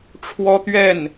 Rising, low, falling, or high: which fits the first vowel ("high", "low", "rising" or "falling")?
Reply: high